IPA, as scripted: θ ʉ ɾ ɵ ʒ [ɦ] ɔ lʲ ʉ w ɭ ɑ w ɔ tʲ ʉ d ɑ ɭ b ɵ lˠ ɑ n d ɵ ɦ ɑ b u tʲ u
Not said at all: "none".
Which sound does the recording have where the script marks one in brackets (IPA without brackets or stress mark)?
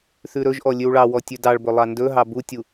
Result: ʔ